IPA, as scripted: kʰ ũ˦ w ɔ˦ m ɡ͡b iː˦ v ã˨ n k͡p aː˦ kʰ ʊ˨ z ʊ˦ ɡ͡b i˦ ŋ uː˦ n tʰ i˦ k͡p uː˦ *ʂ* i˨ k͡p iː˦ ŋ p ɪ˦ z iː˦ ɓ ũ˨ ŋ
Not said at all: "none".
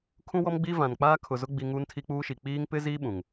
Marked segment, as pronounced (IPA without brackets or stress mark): ʃ